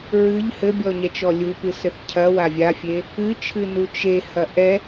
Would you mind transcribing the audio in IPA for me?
ɹ ɨ ʎ h ɘ bʲ ɔ ɲ ɛ t͡ʃ ɔ lʲ u p ɨ s ɘ θ cʰ ɐ w a vʲ a fʲ e | ɨ t͡ʃʰ ɨ n u t͡ʃ e h ɐ ʔ ɛ

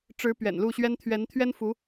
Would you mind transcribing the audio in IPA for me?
ʈ͡ʂ ɻ̩˧˥ p ɥ ɛ̰˨˩ n l u˥˩ ɕ ɥ ɛ˥ n t̪ʰ ɥ ɛ˧˥ n t̪ʰ ɥ ɛ˥ n f u˧˥

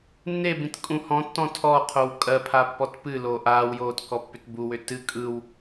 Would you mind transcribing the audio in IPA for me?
nː e b ĩ t kʼ ũ h ɔ̃ tː ɔ̃ tʰ ɔ qʰ o w kʼ ɜ pʰ a pː ɔ t p ɨ l oː ʔ aː w j oː t k ɔ pː ʏ t b u w ʏ t ɨ kʼ ɯ w

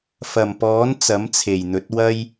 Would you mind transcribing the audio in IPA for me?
f ɐ˨˩ m p ɔː˨˥ n t͡s ɐ˨˥ m t͡sʰ e˨˩ j n̪ ɵ˨˥ t̚ w ɐ˥ j

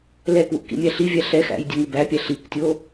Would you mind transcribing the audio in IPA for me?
l ɛ k w ṵ k ḭ mʲ æ ɬ i vʲ æ ɬ ɛ x æ̰ j dʲ ɛ ŋ u b æ pʲ æ ɬ i k tʲ o

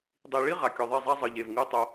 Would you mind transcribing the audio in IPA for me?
dˤ i˨ ɭ i˦ ʁ a˨ kʲ ɔ˨ ðˤ e˦˨ zˤ a˦ zˤ ɯ˨ ʎ e˨ v ŋ ɯ˦ tˤ o˦

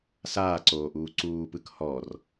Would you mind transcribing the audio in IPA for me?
s aː ǀ oː ʔ uː ǀ uː p ɯ k h ɔ r

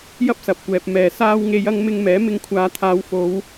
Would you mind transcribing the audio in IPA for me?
j ɐ˥ p̚ s ɐ˨ p̚ kʷ ɛː˨ p̚ m ɛː˨˩ s aː˧ w ŋ e˨˧ j ɐ˧ ŋ m ɪ˧ ŋ m ɛː˨˥ m ɪ˧ ŋ kʷʰ aː˨˧ t̪ʰ aː˨˧ w f o˨˧ w

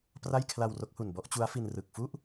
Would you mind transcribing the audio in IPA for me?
p r a˥˩ j kʰ l a˧ w r o˦˥ k̚ h u˨˩ n b ɔ˦˥ ʔ t͡ɕ u˦˥ a̯ f i˧ n r ɯ˨˩ k̚ f u˥˩ ʔ

